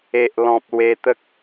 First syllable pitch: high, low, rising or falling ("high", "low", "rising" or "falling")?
low